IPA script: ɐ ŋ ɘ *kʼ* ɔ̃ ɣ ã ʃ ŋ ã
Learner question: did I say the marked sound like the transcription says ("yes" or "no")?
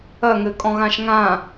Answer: yes